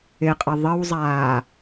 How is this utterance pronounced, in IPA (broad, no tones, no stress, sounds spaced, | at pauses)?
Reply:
ɪ qʼ ə ðˤ ə w zˤ aː